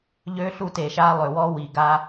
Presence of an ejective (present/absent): absent